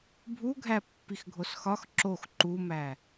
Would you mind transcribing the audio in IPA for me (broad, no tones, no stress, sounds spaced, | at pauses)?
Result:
bʱ u ɡʱ æ pː i x ɡʱ o s x ɒ x ǁ o x ǃ u m æ